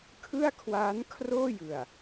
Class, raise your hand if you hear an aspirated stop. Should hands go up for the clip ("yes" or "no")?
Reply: yes